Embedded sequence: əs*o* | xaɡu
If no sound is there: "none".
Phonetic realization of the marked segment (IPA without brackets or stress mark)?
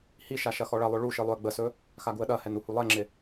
ɵ